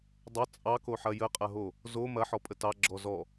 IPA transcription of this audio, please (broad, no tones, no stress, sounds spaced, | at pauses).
dˤ ɐ t͡sʼ ɑ k o ħ ɐ j ə qʼ ɐ ɦ o | z o m ɐ ħ ɔ pʼ ə t ɑ ɡ͡ǁ ɔ z ɔ